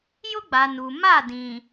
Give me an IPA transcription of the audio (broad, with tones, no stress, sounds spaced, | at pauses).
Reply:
j ʊ˦ ɡ͡b a˨ n u˨ m a˦˨ d ĩ˨